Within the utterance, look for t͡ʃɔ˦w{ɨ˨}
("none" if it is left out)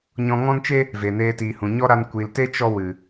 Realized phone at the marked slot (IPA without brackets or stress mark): ɨ˨